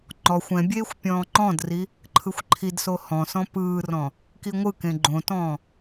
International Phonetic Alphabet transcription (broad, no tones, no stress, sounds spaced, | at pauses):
ŋ͡ǃ ɔ xʷ ɛ̃ bʲ eː xʷ pʲ ɔ̃ː ŋ͡ǃ ɔ̃ d r i | ǃʰ ɯ xʷ ǃʰ i d s o h ɔ̃ s ɔ̃ p ɯː r ɔ̃ | k i ŋʷ ɯ k ẽ ɡ͡ǃ õ t ɔ̃ː